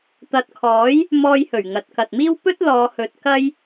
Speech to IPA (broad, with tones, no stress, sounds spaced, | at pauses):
t̪ ɐ˨ t̚ kʰ ɔː˨˥ j | m ɔː˧ j h ɵ˨˩ ɥ ŋ ɐ˨ t̚ k ɐ˨ t̚ m iː˥ w p ɵ˥ t̚ l ɔː˨˧ h ɵ˨˥ t̚ k ɐ˥ j